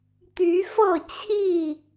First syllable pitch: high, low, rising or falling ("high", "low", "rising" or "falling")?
rising